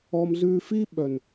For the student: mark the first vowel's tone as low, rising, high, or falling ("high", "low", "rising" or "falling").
high